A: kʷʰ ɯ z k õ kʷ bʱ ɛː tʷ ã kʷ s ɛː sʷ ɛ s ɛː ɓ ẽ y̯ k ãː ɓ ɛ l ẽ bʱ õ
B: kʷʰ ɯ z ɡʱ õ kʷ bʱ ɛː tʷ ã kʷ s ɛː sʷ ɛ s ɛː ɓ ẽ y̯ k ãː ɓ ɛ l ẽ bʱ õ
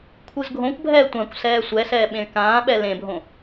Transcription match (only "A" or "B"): B